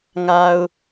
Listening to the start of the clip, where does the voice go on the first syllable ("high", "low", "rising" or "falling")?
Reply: low